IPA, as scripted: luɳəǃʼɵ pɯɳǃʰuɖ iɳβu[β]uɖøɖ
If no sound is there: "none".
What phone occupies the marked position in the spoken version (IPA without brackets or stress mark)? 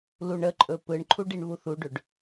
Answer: θ